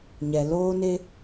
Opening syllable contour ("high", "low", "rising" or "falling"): low